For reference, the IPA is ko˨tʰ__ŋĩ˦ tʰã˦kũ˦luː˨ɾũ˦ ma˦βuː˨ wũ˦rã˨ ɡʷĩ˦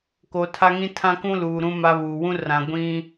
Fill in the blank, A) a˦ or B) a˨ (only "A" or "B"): A